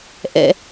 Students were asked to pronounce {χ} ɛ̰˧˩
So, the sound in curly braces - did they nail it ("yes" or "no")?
no